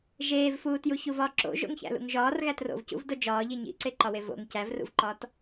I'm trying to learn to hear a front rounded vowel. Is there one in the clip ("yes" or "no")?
no